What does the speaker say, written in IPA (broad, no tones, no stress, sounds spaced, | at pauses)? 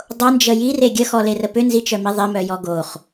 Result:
dˤ o n d͡ʒ ə j i r e ɡʲ ə x ɔ l e r ə p ʏ n z i t͡ʃ œ m i ðˤ ɪ m œ j ɔ ɡ o χ